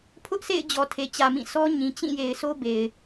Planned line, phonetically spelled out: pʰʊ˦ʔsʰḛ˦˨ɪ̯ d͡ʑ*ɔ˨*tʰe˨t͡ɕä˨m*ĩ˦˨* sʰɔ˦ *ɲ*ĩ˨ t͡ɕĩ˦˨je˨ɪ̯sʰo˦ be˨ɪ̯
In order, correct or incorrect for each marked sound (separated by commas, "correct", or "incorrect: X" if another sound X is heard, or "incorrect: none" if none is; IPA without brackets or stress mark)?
correct, correct, correct